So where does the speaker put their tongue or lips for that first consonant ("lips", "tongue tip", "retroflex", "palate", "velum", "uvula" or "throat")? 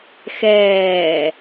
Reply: velum